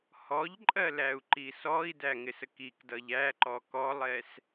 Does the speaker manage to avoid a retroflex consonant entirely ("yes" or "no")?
yes